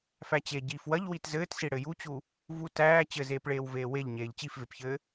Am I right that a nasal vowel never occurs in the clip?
yes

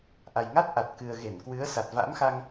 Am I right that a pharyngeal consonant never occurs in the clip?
yes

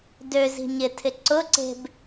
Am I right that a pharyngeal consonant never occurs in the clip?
yes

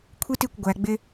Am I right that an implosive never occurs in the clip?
yes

